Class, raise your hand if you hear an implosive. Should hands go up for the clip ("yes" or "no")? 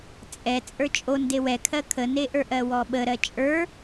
yes